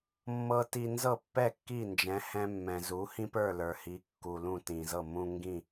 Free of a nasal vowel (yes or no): no